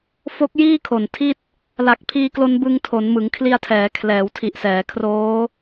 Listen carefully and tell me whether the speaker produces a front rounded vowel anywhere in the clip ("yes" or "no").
no